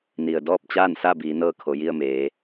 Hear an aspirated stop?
yes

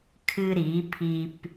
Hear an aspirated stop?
yes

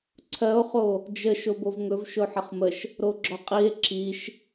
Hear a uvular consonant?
yes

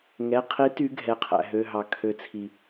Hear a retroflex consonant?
no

